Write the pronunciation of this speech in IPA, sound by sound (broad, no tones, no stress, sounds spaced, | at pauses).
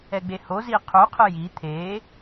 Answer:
ɛ ɡ͡b e h o z i qʰ u qʰ ɯ j i t̪ʰ e